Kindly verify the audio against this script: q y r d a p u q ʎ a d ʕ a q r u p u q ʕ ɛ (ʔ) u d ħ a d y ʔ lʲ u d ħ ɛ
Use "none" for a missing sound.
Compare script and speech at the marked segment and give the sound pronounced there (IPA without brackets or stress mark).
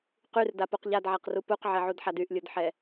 ʕ